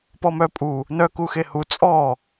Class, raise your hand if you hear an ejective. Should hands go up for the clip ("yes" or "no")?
yes